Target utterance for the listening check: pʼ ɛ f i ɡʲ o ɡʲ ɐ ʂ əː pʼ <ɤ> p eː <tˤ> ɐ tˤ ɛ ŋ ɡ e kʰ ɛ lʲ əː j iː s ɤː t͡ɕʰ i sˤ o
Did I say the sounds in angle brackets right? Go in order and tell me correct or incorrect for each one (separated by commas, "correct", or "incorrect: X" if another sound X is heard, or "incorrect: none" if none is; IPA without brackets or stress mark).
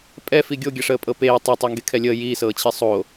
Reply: correct, correct